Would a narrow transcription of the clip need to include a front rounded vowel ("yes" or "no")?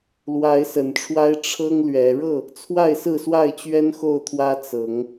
no